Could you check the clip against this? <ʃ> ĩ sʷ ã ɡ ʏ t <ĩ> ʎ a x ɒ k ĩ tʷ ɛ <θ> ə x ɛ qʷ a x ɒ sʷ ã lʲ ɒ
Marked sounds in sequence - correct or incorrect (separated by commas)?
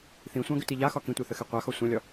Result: incorrect, incorrect, correct